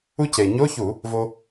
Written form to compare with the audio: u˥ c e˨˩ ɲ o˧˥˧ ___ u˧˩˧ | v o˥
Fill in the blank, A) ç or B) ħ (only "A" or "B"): A